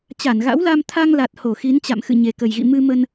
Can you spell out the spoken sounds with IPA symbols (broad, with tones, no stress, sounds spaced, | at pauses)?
t͡ɕ a˧˩ n ɣ a̰˧˥ w l a˧ m t̪ʰ a˧ ŋ l a˨˩ t̚ h o˧˩ x i˨˦ n t͡ɕ a̰˧˨ m x ɨ̰˧˨ ɲ e˨˩ k ə˨˩ j ɣ ḭ˧˨ m ɨ˧ m ə˧ n